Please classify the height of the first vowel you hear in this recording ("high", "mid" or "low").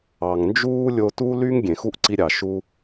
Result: low